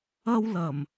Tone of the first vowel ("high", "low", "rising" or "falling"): high